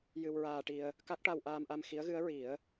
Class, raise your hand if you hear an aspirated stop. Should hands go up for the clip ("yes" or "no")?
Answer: no